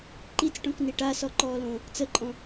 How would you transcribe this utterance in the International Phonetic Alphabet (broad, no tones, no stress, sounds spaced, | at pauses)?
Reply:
ǃ i t͡s ʈ õ k n i ʈ a s ɔ ǃ ɔː l õː | t͡s ə ǃʼ ɔ̃